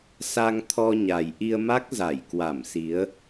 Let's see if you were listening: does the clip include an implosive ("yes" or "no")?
no